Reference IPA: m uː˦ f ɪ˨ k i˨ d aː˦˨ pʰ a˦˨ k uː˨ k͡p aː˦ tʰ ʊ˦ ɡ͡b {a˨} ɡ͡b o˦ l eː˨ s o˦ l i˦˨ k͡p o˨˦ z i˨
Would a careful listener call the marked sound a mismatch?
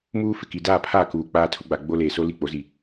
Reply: no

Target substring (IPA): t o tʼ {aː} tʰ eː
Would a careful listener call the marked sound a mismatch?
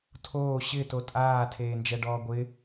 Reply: no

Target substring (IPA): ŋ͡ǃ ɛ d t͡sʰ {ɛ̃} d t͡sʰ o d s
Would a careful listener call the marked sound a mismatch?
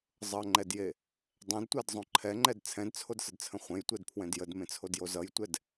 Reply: no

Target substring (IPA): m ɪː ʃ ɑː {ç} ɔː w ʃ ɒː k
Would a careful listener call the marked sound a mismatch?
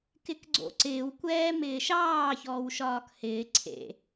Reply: no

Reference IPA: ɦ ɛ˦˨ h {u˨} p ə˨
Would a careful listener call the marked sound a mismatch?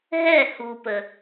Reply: no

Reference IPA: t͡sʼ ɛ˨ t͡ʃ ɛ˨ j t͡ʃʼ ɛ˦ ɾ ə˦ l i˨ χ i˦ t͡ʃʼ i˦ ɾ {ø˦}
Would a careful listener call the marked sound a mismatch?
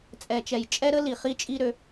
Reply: no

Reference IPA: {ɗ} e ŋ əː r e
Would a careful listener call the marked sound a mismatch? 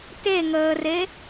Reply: yes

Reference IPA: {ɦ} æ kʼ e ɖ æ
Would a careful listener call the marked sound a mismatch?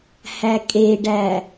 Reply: yes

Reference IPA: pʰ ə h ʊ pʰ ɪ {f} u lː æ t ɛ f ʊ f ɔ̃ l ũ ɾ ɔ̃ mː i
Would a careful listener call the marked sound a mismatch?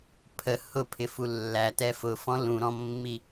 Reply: no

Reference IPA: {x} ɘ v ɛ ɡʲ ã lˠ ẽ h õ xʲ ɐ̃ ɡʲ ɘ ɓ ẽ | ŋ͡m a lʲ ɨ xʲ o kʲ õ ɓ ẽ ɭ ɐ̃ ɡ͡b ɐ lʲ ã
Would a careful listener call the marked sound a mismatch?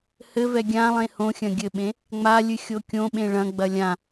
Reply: yes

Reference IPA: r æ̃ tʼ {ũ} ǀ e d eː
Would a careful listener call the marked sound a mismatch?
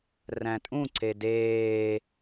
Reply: no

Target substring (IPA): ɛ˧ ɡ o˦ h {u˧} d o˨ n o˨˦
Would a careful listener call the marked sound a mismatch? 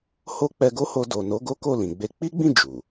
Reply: yes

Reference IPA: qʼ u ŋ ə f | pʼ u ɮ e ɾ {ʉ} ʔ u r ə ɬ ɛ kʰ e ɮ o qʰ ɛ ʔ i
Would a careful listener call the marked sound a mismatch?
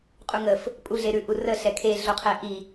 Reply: no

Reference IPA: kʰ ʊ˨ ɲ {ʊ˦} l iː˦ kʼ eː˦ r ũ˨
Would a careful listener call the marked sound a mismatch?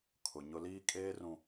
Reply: no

